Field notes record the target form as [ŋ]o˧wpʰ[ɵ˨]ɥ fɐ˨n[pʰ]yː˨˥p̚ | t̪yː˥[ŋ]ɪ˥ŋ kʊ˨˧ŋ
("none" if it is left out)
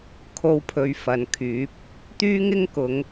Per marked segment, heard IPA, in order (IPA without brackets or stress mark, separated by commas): kʰ, ɵ˨, kʰ, ŋ